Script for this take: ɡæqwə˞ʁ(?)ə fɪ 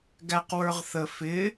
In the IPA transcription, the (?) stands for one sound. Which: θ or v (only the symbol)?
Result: θ